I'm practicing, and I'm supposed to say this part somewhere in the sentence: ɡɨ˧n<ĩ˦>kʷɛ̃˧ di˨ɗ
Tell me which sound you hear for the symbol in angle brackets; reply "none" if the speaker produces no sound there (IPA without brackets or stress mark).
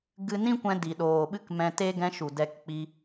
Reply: ĩ˦